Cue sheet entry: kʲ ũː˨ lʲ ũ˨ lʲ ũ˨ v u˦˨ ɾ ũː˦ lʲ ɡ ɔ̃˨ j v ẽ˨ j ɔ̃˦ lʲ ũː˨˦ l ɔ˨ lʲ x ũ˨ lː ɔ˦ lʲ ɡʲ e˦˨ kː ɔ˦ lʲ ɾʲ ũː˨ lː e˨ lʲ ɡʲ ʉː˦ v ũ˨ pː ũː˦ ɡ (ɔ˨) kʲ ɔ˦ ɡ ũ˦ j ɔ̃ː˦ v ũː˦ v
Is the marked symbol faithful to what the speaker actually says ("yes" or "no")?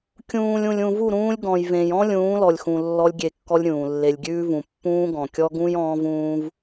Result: no